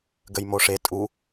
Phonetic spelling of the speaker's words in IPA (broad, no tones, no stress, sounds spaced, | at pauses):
ɡ ə j m o ʂ e tʼ u